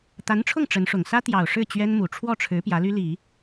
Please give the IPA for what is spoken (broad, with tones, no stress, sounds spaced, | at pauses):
t̪ a˧˥ n ʈ͡ʂʰ ʊ˥˩ ŋ ʈ͡ʂ ə˧˥ n ʂ ʊ˨˩ ŋ s ä˥ t̪ j ɑ˨˩ ʊ̯ ʂ ɻ̩˥˩ t͡ɕ ɥ ɛ˥ n m u˨˩ ʈ͡ʂʰ w ɔ˥˩ ʈ͡ʂʰ ɻ̩˧˥ p j ä˧˥ l y˥ l i˨˩˦